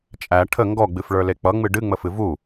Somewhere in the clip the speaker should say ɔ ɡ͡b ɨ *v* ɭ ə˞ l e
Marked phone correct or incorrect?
incorrect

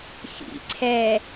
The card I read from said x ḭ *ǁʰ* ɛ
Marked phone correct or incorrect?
incorrect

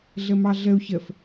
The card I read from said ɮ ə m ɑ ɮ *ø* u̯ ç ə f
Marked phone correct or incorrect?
incorrect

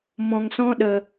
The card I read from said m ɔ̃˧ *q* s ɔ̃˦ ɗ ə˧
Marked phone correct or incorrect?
incorrect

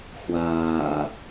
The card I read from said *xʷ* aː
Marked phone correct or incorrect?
correct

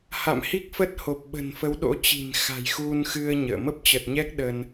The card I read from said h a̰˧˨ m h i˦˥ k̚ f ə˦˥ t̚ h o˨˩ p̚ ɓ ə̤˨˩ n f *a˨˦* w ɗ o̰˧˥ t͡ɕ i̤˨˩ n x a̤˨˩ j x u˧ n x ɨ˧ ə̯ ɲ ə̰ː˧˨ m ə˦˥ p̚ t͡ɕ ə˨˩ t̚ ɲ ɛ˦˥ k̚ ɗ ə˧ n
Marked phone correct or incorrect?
incorrect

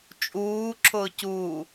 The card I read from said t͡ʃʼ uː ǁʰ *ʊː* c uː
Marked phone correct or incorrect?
correct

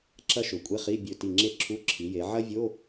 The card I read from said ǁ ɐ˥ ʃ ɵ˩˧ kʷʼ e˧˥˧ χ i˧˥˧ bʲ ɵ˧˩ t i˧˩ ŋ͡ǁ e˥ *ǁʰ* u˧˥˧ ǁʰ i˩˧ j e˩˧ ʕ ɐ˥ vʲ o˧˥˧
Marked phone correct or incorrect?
correct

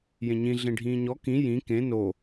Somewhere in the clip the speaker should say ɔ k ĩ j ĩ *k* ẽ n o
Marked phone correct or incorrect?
correct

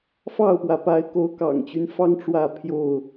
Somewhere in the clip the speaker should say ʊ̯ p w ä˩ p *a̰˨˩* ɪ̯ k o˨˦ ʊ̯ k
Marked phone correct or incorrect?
incorrect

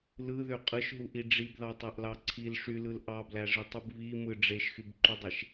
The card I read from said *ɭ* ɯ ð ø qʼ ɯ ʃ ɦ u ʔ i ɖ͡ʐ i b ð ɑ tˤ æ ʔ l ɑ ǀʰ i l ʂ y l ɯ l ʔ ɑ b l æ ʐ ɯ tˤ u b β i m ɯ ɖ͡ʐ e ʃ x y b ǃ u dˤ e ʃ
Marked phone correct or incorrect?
incorrect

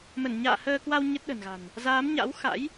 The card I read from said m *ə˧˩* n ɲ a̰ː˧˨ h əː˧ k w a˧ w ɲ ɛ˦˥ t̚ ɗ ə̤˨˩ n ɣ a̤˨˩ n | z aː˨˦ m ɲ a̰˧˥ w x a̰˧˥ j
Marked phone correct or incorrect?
correct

